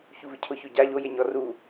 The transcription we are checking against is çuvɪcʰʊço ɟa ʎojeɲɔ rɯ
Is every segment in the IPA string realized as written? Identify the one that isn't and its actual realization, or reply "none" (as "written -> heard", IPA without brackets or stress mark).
ɯ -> u